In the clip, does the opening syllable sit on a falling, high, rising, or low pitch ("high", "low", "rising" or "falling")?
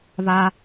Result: high